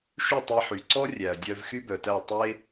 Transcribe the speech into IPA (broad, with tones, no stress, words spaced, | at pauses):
ʃy˥˩tˤe˧ħy˩ǀɔ˥ rʲæ˩ɐ̯ dʲœ˧v xy˥bœ˩tæ˥˩ tˤe˥